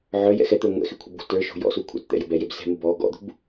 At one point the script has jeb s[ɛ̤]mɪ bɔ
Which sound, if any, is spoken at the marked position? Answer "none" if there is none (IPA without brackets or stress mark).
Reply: ɛ̤